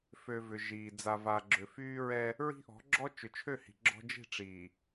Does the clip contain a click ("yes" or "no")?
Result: yes